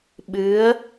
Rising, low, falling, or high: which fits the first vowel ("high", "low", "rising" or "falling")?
rising